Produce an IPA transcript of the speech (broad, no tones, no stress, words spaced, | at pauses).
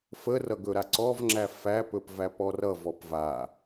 fərʌ ɡɵɾaǀɔvŋ͡ǁæ fæpɵp væpɔrʌ vɔpva